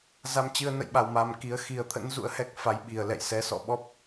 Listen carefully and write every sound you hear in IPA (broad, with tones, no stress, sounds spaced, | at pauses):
z a˧ m t͡ɕ ɨ˧ ə̯ n ə̰˧˨ j ɓ a˨˩ w m a˨˩ m k i˨˦ ə̯ x i˨˩ ə̯ t̪ʰ ə̰˧˥ n z ṵ˧˥ ə̯ h ɛ˦˥ k̚ f a˨˦ j ɓ i˨˩ ə̯ l ɛ̰˧˨ j s ɛ˨˦ s ɔ̰˧˨ ɓ ɔ˦˥ p̚